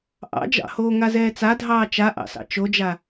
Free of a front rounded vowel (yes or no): yes